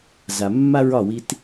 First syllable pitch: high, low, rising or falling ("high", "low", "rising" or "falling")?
low